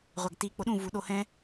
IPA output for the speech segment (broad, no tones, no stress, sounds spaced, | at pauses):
ʁʷ a ɡ t i k͡p o ɗ ũ v u ɗ o h ɛ̃